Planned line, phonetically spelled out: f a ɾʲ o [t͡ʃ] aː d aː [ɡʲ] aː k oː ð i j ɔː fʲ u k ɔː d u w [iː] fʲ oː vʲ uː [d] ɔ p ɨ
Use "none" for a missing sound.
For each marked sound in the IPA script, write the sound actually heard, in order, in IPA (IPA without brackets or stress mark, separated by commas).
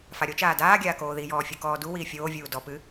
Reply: t͡ʃ, ɡʲ, iː, d